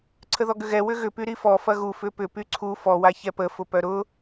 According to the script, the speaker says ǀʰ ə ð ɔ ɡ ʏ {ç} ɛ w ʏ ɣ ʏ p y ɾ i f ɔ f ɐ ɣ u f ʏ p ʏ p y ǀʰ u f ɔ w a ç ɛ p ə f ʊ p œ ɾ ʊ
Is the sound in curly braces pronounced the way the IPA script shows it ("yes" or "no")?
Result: no